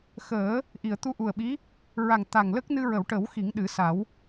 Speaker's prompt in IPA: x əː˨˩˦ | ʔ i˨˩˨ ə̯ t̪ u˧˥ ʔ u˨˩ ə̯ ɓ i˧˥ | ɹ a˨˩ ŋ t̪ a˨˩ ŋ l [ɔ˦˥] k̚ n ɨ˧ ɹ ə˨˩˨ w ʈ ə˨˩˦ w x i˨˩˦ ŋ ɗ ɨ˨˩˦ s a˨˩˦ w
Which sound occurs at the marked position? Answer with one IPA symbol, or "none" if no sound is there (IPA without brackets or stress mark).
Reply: ə˦˥